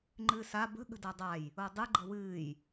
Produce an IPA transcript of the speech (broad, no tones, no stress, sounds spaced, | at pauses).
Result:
ŋ͡ǃ ɨː s a b ə̤ ɠ ə̤ d a dˤ a j | o dˤ ɨ ɡ͡ǃ ə w ɨː j